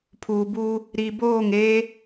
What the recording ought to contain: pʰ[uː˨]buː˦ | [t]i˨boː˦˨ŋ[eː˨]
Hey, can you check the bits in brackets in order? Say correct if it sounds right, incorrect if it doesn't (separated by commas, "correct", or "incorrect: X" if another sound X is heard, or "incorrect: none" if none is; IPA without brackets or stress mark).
correct, incorrect: ɾ, incorrect: eː˦